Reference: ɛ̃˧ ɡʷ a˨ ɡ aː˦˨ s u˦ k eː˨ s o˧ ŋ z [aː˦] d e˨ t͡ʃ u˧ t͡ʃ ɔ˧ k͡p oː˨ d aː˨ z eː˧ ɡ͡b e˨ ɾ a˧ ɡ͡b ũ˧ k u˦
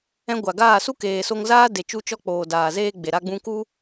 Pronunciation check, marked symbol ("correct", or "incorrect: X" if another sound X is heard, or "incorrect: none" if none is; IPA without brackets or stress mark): correct